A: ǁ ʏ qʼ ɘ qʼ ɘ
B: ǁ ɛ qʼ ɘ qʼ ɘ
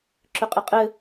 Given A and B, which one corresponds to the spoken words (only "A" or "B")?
A